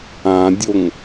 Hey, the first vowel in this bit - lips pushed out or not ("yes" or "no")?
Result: no